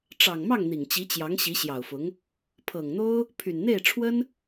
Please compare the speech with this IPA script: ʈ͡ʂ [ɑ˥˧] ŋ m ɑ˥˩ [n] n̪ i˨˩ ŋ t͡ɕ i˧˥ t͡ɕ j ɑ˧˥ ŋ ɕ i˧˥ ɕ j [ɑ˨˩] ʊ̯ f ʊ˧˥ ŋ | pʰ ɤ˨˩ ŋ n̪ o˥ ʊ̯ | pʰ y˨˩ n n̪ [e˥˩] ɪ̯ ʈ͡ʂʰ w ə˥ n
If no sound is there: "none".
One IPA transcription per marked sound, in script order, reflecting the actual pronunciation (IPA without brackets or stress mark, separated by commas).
ɑ˨˩, ŋ, ɑ˨˩, e˥˩